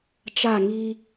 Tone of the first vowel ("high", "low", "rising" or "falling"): falling